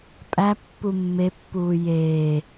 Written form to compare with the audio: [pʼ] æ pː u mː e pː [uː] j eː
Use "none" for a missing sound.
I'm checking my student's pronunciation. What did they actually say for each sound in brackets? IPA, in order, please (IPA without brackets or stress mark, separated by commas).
pʼ, uː